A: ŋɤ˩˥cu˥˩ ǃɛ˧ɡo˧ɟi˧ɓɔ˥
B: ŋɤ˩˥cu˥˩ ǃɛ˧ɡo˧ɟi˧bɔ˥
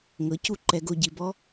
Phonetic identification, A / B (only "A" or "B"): B